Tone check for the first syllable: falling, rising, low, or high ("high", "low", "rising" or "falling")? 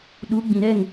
rising